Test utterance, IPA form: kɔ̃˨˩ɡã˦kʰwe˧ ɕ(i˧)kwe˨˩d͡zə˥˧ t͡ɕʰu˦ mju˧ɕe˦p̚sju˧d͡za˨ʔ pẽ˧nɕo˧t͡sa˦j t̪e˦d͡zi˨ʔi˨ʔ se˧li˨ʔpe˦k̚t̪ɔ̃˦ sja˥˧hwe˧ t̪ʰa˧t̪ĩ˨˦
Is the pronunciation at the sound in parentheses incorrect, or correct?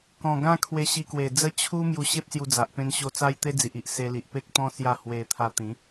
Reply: correct